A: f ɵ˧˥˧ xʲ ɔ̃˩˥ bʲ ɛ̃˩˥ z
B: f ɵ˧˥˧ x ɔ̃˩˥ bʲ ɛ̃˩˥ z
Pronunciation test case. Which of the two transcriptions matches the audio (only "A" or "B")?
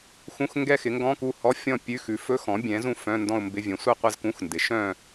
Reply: B